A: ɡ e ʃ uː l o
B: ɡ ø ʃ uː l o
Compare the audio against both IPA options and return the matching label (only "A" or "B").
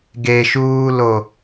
A